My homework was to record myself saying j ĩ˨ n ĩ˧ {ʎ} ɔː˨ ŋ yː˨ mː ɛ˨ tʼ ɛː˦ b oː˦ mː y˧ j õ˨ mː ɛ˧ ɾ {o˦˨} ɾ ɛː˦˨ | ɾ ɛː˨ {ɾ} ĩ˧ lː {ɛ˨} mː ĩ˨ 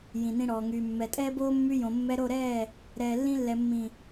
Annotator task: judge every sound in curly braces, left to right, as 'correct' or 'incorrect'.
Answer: incorrect: ɽ, correct, incorrect: lː, correct

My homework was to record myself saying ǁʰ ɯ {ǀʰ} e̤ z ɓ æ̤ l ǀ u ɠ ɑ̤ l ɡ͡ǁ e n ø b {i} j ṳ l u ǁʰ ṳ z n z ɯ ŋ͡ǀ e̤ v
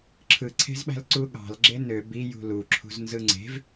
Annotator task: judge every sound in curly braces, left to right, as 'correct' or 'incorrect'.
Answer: correct, correct

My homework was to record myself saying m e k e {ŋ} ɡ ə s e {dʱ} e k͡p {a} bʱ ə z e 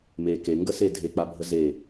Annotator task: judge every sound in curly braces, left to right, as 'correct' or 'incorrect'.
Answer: correct, correct, correct

